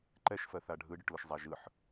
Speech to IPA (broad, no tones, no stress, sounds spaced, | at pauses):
ǃ ɛ ʃ f ɜ θ a ɖʱ ɯ ɖ ʊ ʈ l ʊ ʃ zˤ a ʒ ɯ ħ